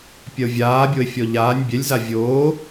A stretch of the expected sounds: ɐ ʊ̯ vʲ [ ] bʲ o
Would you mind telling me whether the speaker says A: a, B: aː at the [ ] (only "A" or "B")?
B